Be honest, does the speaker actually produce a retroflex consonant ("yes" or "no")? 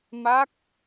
no